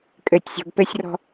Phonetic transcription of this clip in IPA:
kʼ ɘ tʲ sʲ ɔ̤ ɡ p ɘ sʲ r ɔ̤

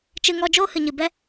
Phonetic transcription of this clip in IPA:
t͡ʃ ɨ˧ ŋ ɔ˧ d͡ʒ oː˦ h ɨ˨ ɲ ɨ˨ b ɛ˦

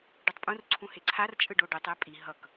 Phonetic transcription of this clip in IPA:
ɖ ɯ tˤ pʼ ũ r ǀʰ ũ h e ǀʰ a r t͡ʃʼ ɯ ɖ o ɖ i tˤ e pʼ i ɦ ʌ k

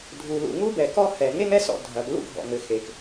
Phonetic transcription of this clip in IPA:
dʱ u˩ l ṵ˩ ŋ u˥ b ɛ˩ k ɔ˥ h ɛ˩ ŋ e˥ ŋ ɛ˥ s ɔ̰˩ dʱ ɐ˩ ɡ l ṵ˥ ɡʱ ɔ̰˩ ŋ ɘ˩ x e˩ k

